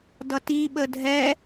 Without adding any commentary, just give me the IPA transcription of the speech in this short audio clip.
d ʌ t i ɓ ə dʱ ɛ

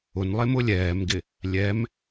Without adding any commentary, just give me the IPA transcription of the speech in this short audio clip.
ʊ n lˠ e m ʊ lʲ ɛː m ɡ ɪ | lʲ ɛ m

